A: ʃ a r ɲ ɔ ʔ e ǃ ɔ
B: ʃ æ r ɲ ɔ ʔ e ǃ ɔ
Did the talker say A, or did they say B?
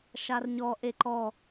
A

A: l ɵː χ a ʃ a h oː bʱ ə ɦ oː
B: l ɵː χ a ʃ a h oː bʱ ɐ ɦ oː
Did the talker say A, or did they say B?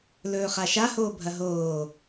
B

